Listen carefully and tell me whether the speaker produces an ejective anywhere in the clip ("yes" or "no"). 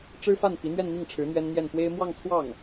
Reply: no